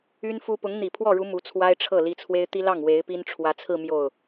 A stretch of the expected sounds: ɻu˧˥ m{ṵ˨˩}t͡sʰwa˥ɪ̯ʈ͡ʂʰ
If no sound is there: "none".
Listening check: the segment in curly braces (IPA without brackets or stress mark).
u˧˥